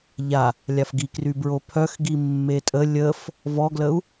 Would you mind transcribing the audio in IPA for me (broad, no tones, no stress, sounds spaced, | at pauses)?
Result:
ʎ a | lʲ a f ɡ i k r y b ɹ o pʰ œ x ɡ i mː e tʼ ə lʲ ə f | v ɔ ɡ l ə u̯